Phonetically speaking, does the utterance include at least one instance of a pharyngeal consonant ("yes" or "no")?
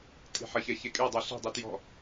yes